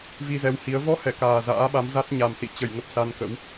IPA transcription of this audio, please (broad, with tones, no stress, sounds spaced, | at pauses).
v i˧ z ɛ˨˦ w h i˨˦ ə̯ v ɔ˧ h ɛ˧˩ k aː˨˩ z a̰ː˧˥ ɓ a˨˦ m z a˦˥ t̚ ɲ a˨˩ m s ḭ˧˨ t͡ɕ ə˧˩ j ŋ ə˨˩ p̚ s a˧ n k ə̰˧˥ w